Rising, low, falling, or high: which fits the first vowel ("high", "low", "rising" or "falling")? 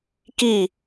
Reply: falling